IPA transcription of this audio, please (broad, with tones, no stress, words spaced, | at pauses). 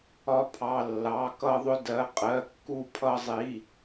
ɒ˧ pʰɑ˩˧˩lːɑ˩˧˩kʌ˧ ðˤʊ˧dɜ˩˧˩ qʼɜ˩˧˩kːu˧ pʰʌ˧zˤi˩˧˩